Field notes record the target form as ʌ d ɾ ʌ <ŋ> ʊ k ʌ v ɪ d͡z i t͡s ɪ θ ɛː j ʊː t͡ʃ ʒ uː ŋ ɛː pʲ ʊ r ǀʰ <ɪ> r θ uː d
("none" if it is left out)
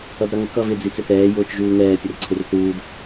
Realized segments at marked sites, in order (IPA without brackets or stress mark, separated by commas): ŋ, ɪ